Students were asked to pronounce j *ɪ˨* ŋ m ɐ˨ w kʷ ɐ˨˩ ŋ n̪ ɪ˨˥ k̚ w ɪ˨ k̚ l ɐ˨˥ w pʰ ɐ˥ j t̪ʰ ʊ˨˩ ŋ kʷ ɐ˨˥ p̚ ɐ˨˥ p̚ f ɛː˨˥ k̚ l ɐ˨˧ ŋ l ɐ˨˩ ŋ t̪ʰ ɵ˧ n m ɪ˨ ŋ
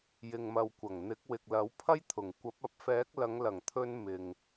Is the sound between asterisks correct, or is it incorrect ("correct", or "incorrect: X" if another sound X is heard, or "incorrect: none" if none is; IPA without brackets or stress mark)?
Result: correct